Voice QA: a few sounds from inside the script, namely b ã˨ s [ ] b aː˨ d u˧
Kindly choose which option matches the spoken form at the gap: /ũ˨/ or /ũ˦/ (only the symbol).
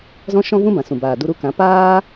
ũ˨